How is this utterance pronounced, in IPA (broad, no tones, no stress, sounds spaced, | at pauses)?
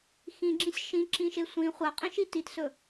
x ĩ ɡ͡ǁ ĩ sʲ ʃ ĩ ǁ ĩ ʃ e sʷ ĩ χʷ a qʼ ĩ ʃ i t i t s ɵ